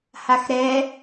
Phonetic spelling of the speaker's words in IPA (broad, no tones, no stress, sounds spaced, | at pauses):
h a x ɾ ɛ